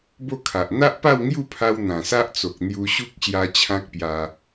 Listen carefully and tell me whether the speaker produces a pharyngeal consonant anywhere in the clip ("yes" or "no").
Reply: no